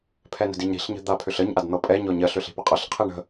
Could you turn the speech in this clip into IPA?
pʰ ɛ n ə̤ d i ɲ ɾ i̤ ɬ ɲ ə̤ d̪ a pʰ ʏ ɬ ə ɲ ʔ a d n̪ ɤ pʼ ɛ ɲ ɔ ɲ ɜ ɬ ʏ ɬ i̤ p ə qʼ ɤ ɬ qʰ i ɳ ə̤

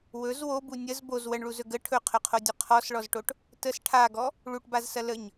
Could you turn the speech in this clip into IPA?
w ɵ z w o b u nʲ ə z b o z w ə ɳ ɭ u z ɵ ɡ ə ʈʰ ɵ qʰ ɵ qʰ o dʲ ɵ qʰ ɔ s ɭ ɔ z ʈ o ʈ | t ə s ʈʰ a ɡ ɔ | ɭ u ʈ b a z s ɐ l ə ɲ

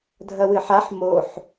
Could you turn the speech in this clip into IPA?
dʱ ɐ w ɨ ħ a ħ m o ħ

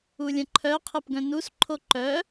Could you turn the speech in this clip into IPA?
u lʲ ə̃ ǃʰ œ qʰ ɯ p ɡ œ̃ n u s ǃʰ o ǃ œ

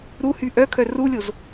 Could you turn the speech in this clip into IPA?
ɾ u h y ʔ œ kʰ œ r u lʲ o z

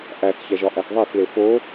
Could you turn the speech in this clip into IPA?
ʔ æ θ ç æ ʒ ɒ ʔ æ θ ðˤ æ θ l e f o

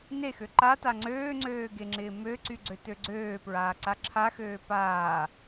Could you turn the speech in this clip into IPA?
n e x ø ǃ a t a ŋ͡ǀ øː ŋ͡ǀ øː ɡ e ŋ͡ǁ ɪː m ø ǀ y ɡ͡ǀ ø t ø ɡ͡ǀ øː p ɹ aː ǀ a ǁʰ a x øː p aː

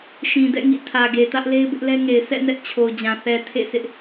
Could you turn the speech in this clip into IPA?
ʃ ĩ˨ d ɛ̰˦˨ ŋ ḭ˦˨ tʰ ä˨ ɡ e˨ t ä˦ ʔ l e˦ ɪ̯ b ɪ˦ ʔ l ɛ˦ ŋ e˨ ɪ̯ s ɛ̰˦˨ n ɛ˦ ʔ t͡ɕʰ o˨ ʊ̯ d͡ʑ ã˨ θ ɛ˨ tʰ ḛ˦˨ sʰ ɪ˦ ʔ

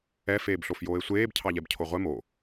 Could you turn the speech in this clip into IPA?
ɛ f eː b ɬ o f j oː e̯ sʷ eː b cʰ ɑ ʎ ɛ b cʰ o ʁʷ ɛ m o

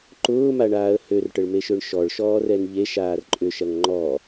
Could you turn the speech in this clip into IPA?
ǃ ʊː m a ɳ aː ə̯ h ø r ʈ ə ɭ m e ʃ ø ɳ ʃ ɔ ɭ ʃ ɔː r ɛ n ʎ e ʃ aː r ǃʼ ʏ ʃ ɐ ŋ ŋ͡ǃ ɔ

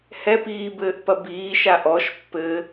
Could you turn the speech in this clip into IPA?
h ɛ p iː b ɘː ʔ p ɐ b iː ʃ a ʔ ɔ ʃ pː ɘː

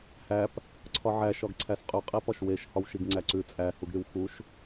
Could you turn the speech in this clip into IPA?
h æ p | ǀʰ ɒ ʕ æ ʃ ɒ ɡ ǀʰ æ s qʼ ʉ qʼ e p ɒ ʃ w e ʃ h ɒ w ʃ i ɡ ŋ͡ǀ æ ǀ ʉ t͡sʼ æ h u ɡ ɾ y w x u ʃ

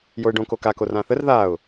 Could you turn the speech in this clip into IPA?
j o ɪ̯ ɖ õ k o k a k o r ã θ ə r ð a ʊ̯

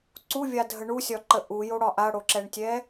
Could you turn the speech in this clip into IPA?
ǀ u vʲ a dʱ ə ɳ u sʲ ɒ ǃ ə ʔ u j o ɽ ɒ ʔ a ɽ o ǁ ɛ ɳ tʲ ɛ

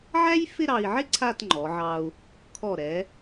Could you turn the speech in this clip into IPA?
ʕ æ˥ j f ɪ˥˧ ɾ ɑ˧ i̯ ʕ ɪ˥ ǀʰ a˥˧ t ŋ͡ǃ ɔ˩˧ ʕ ɑ˧ u̯ | kʰ ɔ˧˩ ɾ ɛ˩˧

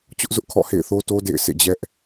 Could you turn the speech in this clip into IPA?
t͡ɕ ʊ˦ ʔ z ʊ˦ ʔ kʰ ɔ̰˦˨ h ḛ˦˨ ɪ̯ θ o˦ t o˦ d ḛ˦˨ ɪ̯ sʰ ḛ˦˨ d͡ʑ ɛ˦ ʔ

